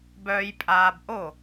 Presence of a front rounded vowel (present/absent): present